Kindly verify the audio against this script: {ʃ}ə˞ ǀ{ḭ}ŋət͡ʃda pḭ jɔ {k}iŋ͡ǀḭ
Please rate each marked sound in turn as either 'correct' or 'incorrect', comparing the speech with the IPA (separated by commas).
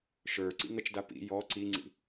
correct, correct, incorrect